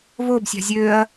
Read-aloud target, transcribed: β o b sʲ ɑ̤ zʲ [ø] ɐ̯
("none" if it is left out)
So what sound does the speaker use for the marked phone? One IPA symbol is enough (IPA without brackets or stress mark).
ø